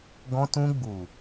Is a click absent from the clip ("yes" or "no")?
yes